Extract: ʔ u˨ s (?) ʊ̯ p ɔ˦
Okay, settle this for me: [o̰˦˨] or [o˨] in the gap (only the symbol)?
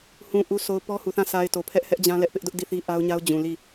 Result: o˨